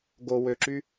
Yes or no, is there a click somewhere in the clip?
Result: yes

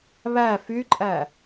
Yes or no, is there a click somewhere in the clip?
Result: yes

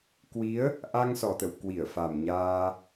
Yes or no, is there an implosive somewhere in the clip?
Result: no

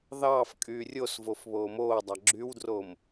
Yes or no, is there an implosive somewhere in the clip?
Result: no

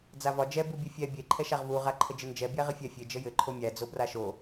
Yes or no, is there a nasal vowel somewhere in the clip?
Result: no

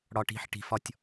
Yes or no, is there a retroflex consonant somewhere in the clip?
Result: yes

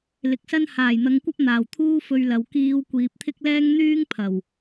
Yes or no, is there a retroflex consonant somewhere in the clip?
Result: no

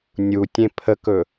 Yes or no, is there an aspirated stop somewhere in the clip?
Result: yes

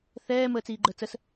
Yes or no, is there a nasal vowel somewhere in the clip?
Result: no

